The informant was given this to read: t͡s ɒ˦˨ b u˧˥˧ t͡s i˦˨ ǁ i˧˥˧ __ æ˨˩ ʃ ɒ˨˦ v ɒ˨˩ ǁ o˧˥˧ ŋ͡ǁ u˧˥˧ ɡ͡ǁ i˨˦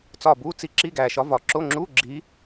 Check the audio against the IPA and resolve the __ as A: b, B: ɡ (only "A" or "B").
B